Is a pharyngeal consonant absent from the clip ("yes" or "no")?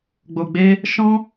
yes